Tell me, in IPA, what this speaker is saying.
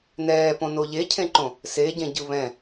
n ɛː p õ n o ʎ e cʰ ẽ ǃ õ | s e ɟ ẽ ɟ ɯ β ɛ̃

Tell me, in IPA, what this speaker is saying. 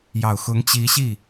j ɑ˨˩ ʊ̯ x ʊ˧˥ ŋ t͡ɕ i˧˥ ɕ i˥˩

